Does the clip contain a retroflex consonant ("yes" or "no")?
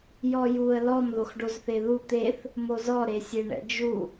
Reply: yes